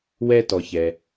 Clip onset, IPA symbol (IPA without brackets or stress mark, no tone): w